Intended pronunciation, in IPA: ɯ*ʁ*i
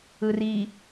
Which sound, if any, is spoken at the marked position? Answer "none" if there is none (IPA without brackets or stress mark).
r